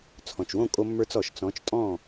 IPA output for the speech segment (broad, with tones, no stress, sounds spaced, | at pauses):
t͡sʰ ɔ̃˩ t͡ʃ w õ˥˩ kʼ o˧ mː ə˞˧ t͡s ɔ˩ ʃ t͡s ɔ̃˩˥ t͡ʃ tʼ ɔ̃˥˩